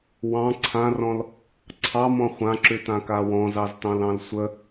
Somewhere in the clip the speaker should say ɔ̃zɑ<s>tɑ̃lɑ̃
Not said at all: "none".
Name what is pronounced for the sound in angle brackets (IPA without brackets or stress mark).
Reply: z